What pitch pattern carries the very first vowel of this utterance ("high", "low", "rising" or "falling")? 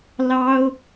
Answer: high